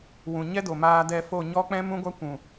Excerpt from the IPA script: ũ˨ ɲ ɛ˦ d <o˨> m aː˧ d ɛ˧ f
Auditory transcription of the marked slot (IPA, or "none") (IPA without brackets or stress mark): o˨